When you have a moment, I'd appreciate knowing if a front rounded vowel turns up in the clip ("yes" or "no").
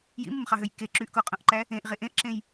yes